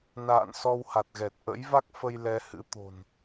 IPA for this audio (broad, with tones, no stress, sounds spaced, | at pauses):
n a̰ː˧˨ n s ɔ˧ w h a˨˩ t̚ ɣ ɛ˨˩ t̚ ʔ ə̰˧˥ j v a˦˥ k̚ f ə˧ j l ɛ˨˦ h ɨ̰˧˥ t̪ o̤˨˩ n